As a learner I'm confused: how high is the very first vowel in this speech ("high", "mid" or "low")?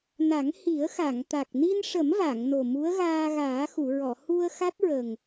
low